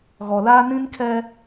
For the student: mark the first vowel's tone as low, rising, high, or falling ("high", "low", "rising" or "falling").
low